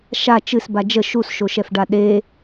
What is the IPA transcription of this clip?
ʃ a t͡ʃ ɨ s b a d͡ʒ ə ʃ u s ʃ o ʃ ɛ f ɖ a ɗ e

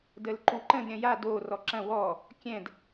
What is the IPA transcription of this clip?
d ə l ǃ u ǃ ə̃ d ɾʲ ɐ̃ j a d o r ɔ ǁ ɐ̃ w ɔ | kʲ ɛ̃ d

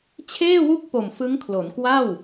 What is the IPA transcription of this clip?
t͡ɕʰ eː˥˩ w u˥˩ k̚ p o˨˩ m f ɯ˦˥ ŋ kʰ l o˩˦ n k w a˥˩ w

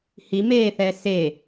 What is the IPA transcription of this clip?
h i m eː θ ɛː s e

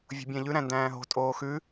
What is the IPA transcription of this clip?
vʲ o̤ bʲ ɛ̃ ʎ ʉ ɾ æ̃ n d æ̃ː ɦ o̤ tʼ oː x ʉ

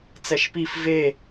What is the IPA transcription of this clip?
t͡s ɛ ʃ p i f v e

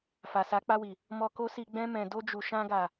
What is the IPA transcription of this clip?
f a˨ s a˨˦ k͡p a˧ w i˨ | m ɔ˧ k o˦ s i˧ ɡ͡b ɛ̃˧ m ɛ̃˨ d o˧ d͡ʒ u˨ ʃ ã˧ ɡ a˨

